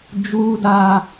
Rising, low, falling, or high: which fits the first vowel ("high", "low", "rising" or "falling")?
high